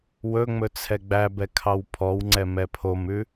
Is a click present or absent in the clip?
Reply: present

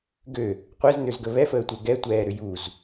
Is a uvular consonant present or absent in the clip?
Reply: present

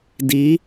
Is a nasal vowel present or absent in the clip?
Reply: absent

